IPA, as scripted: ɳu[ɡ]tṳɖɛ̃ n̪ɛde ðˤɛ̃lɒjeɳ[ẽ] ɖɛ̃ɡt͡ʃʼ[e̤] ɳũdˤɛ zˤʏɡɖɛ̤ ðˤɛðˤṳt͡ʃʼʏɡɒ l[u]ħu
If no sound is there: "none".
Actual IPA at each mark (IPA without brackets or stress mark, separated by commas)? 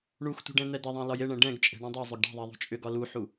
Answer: x, ɛ̃, e̤, u